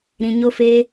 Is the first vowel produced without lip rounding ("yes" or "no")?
yes